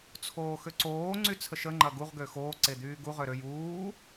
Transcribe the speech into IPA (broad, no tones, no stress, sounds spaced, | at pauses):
t͡sʰ oː x ø ǀ oː ŋ͡ǀ y t͡sʰ ə ʃ ə ŋ͡ǃ ɐ ɡ u ʁ ɡ ø x oː ǀ e d̪ yː ɡ u ʁ ø ɾ ø j uː